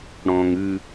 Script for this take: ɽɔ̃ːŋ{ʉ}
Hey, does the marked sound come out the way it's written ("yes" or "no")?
yes